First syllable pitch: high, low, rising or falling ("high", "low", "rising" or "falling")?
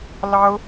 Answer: high